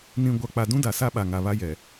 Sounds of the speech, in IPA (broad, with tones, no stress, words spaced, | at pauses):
nĩ˨ ɡʷa˨ k͡pa˨dũ˦da˨ sa˦ɓa˨ŋa˨βa˦ jɛ˨